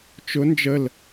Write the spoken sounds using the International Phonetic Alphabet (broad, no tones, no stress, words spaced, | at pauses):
t͡ʃʊ nd͡ʒəl